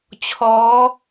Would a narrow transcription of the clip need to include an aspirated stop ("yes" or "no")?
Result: yes